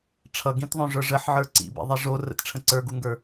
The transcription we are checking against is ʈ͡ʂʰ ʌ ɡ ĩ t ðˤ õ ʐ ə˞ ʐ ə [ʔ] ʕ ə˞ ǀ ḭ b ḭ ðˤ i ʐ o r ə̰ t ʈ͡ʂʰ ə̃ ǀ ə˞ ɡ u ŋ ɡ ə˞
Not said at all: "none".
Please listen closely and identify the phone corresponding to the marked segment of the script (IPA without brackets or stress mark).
ħ